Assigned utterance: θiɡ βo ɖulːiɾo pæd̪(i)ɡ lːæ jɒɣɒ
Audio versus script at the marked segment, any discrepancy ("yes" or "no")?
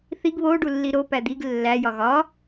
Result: no